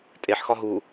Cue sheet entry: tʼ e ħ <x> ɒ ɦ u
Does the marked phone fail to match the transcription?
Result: no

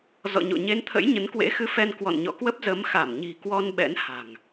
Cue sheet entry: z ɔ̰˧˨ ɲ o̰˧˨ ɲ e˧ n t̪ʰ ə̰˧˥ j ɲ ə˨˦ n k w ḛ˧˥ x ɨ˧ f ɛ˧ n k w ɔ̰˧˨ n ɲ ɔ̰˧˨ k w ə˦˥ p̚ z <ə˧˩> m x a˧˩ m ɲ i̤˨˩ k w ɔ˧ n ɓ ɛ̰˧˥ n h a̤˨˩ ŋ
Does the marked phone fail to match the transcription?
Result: yes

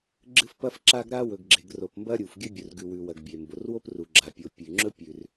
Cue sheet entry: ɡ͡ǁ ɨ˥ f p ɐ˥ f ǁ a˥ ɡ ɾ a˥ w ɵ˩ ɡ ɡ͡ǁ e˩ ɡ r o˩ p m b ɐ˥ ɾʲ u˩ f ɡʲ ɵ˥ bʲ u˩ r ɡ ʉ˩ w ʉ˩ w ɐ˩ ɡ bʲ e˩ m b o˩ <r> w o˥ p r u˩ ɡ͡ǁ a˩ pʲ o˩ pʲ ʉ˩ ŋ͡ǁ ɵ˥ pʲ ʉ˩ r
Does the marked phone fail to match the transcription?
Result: no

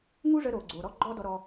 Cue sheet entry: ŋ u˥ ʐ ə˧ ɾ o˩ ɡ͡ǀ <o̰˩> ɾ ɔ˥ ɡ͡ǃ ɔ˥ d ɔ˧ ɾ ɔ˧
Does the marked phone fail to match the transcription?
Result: yes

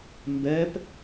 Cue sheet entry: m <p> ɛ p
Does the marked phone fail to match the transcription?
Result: yes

